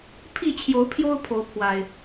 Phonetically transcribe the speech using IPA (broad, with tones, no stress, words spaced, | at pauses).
pʰi˥˨t͡ɕʰjo˨˦ʊ̯pʰjo˦ʊ̯ pʰo˨˦ʊ̯pʰwa˨˩ɪ̯